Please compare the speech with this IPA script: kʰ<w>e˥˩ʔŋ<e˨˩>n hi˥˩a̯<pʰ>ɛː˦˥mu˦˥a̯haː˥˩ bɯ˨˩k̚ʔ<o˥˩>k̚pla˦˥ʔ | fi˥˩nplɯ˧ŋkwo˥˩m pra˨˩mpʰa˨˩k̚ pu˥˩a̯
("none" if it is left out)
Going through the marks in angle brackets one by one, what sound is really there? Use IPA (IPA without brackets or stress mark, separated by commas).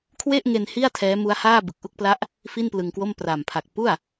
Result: w, e˧, tʰ, u˥˩